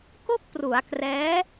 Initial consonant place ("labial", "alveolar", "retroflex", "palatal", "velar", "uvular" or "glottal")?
velar